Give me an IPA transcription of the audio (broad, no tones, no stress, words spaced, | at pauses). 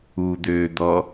ud̪øːd̪ɔ